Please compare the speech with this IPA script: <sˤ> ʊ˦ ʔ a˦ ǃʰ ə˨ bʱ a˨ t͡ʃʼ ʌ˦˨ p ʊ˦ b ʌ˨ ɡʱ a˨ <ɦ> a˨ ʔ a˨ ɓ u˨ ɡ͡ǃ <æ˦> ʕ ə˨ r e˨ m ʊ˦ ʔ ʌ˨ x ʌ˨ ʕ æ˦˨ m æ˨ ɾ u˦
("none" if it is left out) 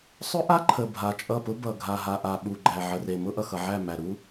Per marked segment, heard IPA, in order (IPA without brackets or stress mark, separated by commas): sˤ, ɦ, æ˨